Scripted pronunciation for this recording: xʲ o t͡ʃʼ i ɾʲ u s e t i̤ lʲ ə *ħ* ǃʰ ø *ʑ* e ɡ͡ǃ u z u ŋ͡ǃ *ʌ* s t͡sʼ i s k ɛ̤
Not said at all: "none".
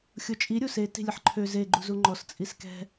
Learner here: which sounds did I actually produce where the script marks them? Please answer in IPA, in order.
ħ, z, ɔ

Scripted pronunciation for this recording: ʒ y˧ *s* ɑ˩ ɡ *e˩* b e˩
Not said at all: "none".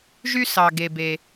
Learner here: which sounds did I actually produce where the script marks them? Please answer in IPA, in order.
s, e˩

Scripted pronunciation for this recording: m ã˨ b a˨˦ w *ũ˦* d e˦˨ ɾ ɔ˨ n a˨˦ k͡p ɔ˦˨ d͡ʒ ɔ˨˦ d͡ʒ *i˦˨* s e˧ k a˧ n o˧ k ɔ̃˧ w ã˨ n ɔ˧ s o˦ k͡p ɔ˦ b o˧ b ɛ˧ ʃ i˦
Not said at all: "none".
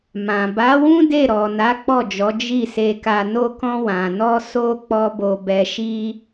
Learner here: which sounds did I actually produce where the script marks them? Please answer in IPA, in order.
ũ˦, i˦˨

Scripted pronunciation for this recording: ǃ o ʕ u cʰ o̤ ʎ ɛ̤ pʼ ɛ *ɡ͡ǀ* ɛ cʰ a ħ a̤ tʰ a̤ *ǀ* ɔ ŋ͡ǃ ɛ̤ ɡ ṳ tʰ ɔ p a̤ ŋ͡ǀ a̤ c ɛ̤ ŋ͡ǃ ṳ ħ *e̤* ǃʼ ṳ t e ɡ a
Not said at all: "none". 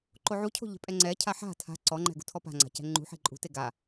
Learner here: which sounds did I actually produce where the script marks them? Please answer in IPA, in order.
ŋ͡ǀ, ǀ, e̤

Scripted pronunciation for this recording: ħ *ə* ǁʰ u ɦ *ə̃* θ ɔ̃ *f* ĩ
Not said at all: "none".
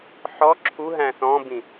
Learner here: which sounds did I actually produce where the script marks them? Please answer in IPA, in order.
ɔ, æ̃, b

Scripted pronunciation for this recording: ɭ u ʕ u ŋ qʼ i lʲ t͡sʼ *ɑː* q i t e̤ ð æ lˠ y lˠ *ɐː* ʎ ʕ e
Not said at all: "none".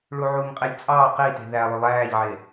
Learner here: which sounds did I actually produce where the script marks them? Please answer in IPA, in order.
ɑː, æː

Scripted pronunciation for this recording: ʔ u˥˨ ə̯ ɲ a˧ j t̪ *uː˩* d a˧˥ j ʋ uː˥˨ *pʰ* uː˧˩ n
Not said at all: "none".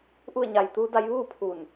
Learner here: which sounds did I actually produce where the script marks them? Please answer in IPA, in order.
uː˧˥, pʰ

